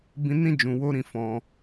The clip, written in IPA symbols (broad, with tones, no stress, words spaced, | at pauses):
bĩ˧nĩ˦ d͡ʒũ˧wo˦ɾĩ˦˨ fɔ̃˧